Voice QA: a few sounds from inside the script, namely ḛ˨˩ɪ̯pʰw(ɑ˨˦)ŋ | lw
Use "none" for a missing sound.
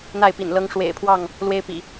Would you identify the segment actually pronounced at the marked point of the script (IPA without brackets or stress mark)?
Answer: ɑ˥˨